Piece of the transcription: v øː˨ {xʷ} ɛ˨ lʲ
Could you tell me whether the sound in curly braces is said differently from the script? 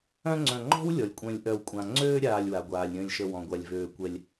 yes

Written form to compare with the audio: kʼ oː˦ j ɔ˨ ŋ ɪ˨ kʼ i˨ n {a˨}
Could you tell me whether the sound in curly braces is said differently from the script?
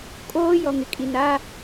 yes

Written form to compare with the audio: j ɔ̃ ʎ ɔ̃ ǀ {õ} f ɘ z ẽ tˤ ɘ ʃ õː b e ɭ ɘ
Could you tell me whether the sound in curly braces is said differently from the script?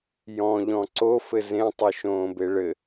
yes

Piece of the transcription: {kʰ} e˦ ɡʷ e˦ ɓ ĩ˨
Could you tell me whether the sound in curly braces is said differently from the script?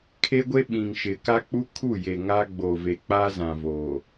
no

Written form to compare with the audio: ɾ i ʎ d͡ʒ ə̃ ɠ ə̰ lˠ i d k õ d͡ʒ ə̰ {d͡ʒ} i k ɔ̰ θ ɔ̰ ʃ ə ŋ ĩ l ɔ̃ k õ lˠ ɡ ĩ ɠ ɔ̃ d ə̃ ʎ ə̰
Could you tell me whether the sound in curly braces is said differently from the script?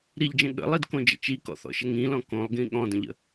yes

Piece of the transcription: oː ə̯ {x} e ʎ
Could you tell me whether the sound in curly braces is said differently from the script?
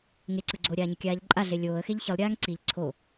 no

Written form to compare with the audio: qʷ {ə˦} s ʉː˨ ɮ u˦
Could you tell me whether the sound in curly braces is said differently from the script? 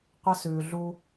no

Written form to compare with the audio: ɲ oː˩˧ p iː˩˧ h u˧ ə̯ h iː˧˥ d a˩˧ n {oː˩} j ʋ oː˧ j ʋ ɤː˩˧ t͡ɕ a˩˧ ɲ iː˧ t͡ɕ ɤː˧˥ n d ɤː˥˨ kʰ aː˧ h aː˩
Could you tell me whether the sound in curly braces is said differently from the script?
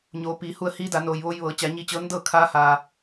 no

